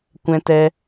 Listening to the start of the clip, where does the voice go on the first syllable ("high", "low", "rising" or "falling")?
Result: high